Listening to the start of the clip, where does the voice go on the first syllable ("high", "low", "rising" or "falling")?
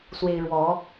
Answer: high